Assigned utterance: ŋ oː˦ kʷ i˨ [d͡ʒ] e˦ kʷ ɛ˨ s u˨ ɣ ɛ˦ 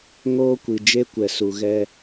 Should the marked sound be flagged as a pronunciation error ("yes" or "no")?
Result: no